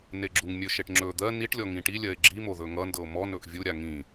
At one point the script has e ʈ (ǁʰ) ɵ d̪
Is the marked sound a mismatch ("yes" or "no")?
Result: yes